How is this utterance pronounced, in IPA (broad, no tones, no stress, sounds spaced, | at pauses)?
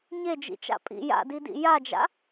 ɲ e d͡ʒ ḭ t͡ʃ a̰ pʼ ḭ j a̰ d i d ḭ j a d͡ʒ a̰